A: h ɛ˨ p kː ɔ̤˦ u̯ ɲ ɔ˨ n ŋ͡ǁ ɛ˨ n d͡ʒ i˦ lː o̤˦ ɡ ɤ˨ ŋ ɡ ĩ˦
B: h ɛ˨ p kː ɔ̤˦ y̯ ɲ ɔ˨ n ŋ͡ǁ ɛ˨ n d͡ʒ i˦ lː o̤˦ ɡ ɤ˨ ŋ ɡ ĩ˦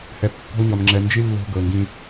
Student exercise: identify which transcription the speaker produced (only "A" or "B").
A